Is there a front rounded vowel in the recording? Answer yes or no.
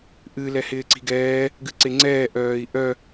yes